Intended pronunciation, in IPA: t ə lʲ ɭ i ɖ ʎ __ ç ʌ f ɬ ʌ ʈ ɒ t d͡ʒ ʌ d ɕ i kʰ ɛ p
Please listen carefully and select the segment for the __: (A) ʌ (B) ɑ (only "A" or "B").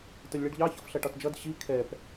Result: B